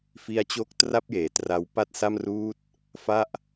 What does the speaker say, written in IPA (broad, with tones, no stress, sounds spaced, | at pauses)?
f i˧ a̯ t͡ɕ o˦˥ k̚ t r a˥˩ p̚ j eː˩˦ t r a˧ w p a˥˩ t̚ s a˥˩ m r uː˥˩ t̚ | f a˥˩ ʔ